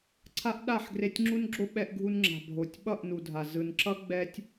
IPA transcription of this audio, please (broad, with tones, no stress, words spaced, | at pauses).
ǀʰa˦ʔɗa˦˨ħ ɡre˧tʲŋ͡ǁu˦nɡ͡ǁo˦ ɓɛ˧ʔɡʱu˧nŋ͡ǁa̤˨ bʱo˨tʲɓʌ˦˨ʔnu˨dʱa˨ zɯ˨n ǁʌ˦ ɡ͡bɛ˦tʲ